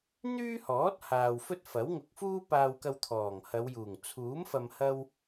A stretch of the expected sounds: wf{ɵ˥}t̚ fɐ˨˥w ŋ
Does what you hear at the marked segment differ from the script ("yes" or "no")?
no